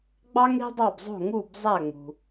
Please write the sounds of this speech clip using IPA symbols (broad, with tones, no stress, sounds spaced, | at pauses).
ɡ͡b ɑ˥ ŋ ɽ i̤˥ dˤ ɑ˥˩ b zˤ o̤˥˩ ŋ u˥˩ b zˤ æ˥˩ ŋ͡m ṳ˩